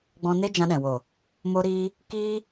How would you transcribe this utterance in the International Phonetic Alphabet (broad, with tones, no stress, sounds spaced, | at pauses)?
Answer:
ɡ͡b ɔ̃˧ n e˦ d͡ʒ ã˧ ɗ ɛ̃˨ w o˨ | m o˧ ɾ iː˧ | k iː˦